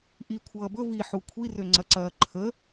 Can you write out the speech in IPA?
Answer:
ʔ i kʷʰ ʌː b ɵ v i ħ u kʷʰ i r ø ŋ͡ǀ ɐ ǀ ɐː ǃʰ ə

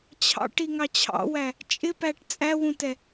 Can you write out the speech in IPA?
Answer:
t͡ɕʰ ɑ̰ ʈ i ŋ ɑ t͡ɕʰ ɑ̰ w æ | t͡ʃʼ ɪ p æ ʈ t͡sʼ æ w ũ t ɛ

